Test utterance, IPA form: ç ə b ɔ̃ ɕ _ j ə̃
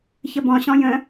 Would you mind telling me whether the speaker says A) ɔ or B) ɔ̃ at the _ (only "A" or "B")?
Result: B